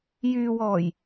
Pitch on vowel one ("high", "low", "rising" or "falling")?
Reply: low